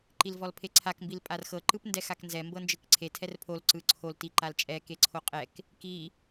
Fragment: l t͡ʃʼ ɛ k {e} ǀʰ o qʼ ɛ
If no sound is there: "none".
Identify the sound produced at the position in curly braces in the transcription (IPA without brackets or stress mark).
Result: e